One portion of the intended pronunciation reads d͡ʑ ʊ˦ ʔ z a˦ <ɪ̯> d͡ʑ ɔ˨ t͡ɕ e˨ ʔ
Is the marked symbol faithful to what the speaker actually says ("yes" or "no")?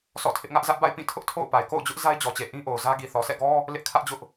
yes